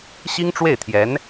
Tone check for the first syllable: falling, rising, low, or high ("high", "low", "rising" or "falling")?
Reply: high